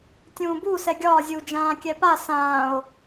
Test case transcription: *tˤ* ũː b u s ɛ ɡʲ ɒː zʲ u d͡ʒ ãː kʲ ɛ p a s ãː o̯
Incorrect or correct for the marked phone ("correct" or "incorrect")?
incorrect